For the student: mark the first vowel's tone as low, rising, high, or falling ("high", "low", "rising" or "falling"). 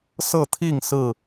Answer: falling